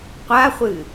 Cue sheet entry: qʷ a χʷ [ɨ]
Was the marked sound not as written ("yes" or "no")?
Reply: no